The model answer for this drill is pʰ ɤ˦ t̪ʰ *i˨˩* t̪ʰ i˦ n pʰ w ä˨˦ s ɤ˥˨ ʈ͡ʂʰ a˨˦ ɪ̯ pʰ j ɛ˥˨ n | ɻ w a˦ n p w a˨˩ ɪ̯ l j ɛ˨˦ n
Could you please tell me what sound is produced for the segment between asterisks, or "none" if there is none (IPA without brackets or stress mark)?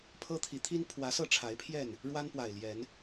i˨˦